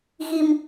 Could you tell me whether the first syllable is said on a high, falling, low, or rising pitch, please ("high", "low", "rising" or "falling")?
low